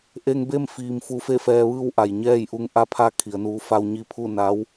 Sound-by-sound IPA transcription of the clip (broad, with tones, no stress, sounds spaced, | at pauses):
ʔ e˧ ŋ b e˥˨ m f iː˩ m f u˧ f e˥˨ f ɛː˧ ʋ ɯː˥˨ w ʔ a˩ j ɲ ɛː˥˨ j ʔ u˧ ŋ ʔ a˧˥ pʰ a˧˥ kʰ i˩˧ ə̯ n uː˧˥ f a˧ w ɲ i˧ pʰ u˥˨ n a˧˥ w